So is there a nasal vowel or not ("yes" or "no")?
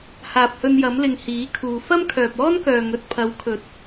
no